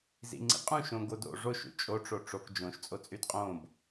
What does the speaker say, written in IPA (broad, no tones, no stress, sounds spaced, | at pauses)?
z ḭ ŋ͡ǀ ḭ qʼ ũ ʃ õ ɡ o d o̰ ʐ o ʃ ṵ t͡ʃʼ o ʈ͡ʂ o ʈ͡ʂ o k d͡ʒ õ ʃ t͡sʼ o t͡sʼ y d qʼ õ b